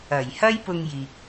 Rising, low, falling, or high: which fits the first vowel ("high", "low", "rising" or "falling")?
low